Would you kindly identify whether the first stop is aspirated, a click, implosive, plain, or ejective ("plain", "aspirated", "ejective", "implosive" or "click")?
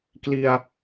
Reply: plain